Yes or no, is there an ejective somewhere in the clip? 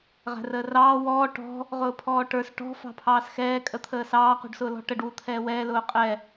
yes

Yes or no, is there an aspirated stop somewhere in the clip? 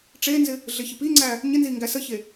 no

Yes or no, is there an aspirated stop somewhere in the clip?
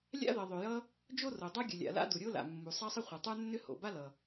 no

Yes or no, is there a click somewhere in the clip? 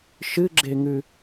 yes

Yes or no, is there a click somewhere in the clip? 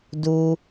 no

